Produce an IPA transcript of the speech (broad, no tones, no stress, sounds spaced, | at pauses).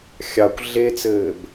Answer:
xʲ ɑ kʷ ɮ e t͡s ɘː b